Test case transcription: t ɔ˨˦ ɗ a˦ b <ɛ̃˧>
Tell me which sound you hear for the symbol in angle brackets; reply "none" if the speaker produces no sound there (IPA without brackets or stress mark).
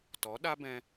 ɛ̃˧